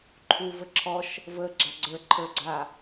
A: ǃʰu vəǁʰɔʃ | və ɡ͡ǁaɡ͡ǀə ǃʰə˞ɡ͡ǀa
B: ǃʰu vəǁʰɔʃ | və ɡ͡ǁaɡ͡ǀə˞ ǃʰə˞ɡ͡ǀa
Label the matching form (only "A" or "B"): B